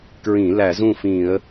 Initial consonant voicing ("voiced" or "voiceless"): voiceless